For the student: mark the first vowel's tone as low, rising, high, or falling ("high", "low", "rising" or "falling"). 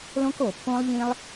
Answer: high